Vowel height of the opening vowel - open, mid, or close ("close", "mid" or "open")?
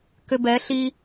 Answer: close